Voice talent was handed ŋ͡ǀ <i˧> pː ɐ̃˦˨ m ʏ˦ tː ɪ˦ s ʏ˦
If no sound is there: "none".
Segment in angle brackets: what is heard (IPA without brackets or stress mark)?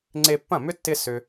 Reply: e˧